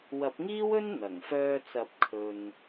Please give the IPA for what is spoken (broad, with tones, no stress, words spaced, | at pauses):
wɐ˨˥p̚ŋiː˥wɵ˥n n̪ɐ˨˩ŋfœː˧t͡sɐ˨˥p̚ kʰɵ˧n